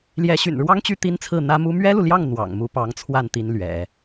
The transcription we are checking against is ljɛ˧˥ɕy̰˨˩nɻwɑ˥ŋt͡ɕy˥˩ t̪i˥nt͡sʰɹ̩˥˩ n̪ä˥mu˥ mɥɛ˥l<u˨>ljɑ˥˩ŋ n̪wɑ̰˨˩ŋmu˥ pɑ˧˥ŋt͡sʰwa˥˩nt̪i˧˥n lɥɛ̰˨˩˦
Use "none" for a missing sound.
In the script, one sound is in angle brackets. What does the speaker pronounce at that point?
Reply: u˨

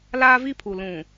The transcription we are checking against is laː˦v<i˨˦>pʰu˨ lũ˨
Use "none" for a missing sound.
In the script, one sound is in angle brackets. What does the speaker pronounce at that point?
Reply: i˦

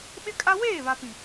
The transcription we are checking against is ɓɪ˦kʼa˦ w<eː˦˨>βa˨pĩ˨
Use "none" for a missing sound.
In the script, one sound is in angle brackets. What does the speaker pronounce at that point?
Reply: eː˦˨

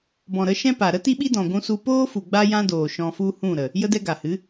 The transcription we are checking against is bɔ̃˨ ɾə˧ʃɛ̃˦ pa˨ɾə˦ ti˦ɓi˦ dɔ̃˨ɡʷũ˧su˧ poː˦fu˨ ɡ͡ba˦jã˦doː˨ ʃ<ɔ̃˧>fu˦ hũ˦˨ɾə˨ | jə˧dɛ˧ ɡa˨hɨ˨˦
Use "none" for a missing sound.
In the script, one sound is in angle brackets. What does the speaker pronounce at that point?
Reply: ɔ̃˧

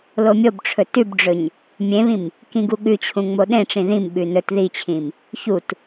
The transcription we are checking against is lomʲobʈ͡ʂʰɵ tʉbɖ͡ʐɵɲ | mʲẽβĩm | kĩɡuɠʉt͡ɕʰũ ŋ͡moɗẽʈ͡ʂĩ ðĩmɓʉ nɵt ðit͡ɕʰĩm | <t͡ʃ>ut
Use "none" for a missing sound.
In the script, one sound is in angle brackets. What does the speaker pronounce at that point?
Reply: ç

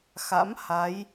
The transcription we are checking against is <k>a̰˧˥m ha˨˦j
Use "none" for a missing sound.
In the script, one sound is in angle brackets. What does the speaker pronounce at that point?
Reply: x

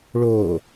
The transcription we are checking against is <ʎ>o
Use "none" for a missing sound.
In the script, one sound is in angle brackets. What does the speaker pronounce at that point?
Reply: ɭ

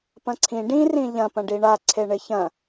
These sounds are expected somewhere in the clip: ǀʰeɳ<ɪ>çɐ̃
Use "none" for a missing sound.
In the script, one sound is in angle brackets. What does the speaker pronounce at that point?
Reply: ɪ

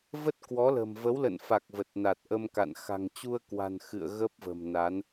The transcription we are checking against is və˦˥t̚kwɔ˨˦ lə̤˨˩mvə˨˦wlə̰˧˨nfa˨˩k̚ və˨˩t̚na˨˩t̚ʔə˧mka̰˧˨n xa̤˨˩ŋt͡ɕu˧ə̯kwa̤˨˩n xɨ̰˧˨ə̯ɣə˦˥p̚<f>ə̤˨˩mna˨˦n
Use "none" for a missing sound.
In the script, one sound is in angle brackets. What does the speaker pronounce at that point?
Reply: v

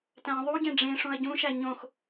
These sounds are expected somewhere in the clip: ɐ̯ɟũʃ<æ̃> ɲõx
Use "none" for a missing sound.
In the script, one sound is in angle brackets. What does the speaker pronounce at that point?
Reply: æ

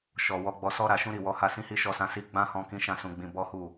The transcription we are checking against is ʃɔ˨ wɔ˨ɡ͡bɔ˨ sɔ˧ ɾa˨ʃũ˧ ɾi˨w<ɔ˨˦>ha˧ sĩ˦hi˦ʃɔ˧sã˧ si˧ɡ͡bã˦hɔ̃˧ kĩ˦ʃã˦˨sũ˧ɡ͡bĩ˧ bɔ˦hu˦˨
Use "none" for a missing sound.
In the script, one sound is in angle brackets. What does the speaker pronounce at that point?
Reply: ɔ˨˦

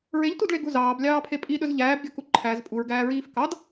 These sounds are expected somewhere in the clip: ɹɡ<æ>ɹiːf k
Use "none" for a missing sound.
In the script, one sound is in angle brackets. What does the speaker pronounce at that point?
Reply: æː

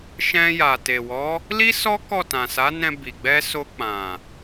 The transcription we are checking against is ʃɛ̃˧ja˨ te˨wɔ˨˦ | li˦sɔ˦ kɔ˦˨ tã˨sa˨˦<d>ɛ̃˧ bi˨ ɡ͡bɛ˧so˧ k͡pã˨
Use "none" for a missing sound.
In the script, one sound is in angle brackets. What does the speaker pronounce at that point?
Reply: n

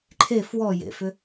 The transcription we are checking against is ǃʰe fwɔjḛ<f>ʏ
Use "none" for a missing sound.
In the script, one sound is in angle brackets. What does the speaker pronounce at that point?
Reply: f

